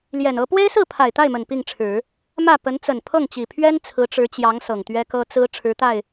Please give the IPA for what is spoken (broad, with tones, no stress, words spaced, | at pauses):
ljɛ˨˩nɤ˧˥ pwe˥ɪ̯sɹ̩˥˩ pʰa˨˩ɪ̯t̪a˥˩ɪ̯mə˨˩n pi˥˩ŋʈ͡ʂʰɻ̩˨˩˦ | mä˥˩ pə˧˥nt͡sə˨˩n pʰɤ˥˩ŋt͡ɕi˨˩pʰɥɛ˥n t͡sʰɹ̩˧˥ʈ͡ʂɻ̩˧˥t͡ɕjɑ˧˥ŋ sɤ˨˩ŋt̪ɥɛ˥kɤ˥ t͡sɹ̩˥ ʈ͡ʂʰɻ̩˧˥t̪a˥˩ɪ̯